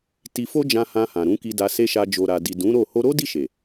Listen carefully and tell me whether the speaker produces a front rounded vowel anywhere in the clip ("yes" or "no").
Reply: no